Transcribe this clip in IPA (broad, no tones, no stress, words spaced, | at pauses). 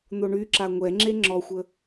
n̪oɳyǁa ŋʷɛŋ͡ǁe ŋ͡ǁɔxʷə